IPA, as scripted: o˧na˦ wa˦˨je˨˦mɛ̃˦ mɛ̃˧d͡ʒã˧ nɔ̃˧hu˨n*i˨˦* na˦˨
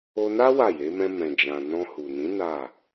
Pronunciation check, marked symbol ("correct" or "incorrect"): incorrect